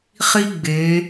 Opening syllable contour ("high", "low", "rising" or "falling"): high